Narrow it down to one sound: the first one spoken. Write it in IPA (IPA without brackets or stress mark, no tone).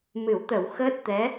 m